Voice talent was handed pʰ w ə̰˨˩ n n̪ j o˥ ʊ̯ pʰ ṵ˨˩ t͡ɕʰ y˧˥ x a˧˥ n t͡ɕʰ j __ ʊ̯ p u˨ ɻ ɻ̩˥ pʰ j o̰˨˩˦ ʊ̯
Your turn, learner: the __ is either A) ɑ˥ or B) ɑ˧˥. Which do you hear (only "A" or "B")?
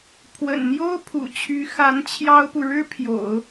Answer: A